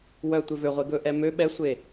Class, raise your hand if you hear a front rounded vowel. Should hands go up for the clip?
yes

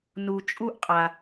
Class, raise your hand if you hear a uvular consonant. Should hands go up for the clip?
yes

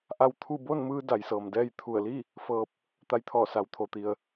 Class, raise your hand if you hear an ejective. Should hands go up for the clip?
no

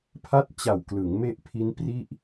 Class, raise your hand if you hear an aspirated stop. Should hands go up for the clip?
yes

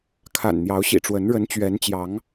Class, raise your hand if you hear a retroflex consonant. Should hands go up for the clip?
yes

